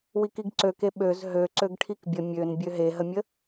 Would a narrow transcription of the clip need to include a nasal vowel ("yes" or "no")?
no